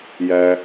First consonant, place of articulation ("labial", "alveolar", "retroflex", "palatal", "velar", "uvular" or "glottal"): palatal